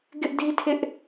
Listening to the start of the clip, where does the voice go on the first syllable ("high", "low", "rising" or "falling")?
high